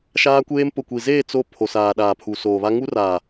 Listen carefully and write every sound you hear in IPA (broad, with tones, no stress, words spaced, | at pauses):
ʃaː˦kʷeː˦m pʊ˨kʷi˨zeː˦˨ t͡so˦˨ pʰo˨saː˨ɗaː˨ pʰu˨soː˨βa˦ ŋu˦raː˨